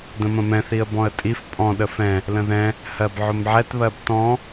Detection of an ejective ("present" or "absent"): present